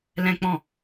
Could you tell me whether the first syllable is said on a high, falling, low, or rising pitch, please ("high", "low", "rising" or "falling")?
high